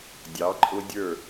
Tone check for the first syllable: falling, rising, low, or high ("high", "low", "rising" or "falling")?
rising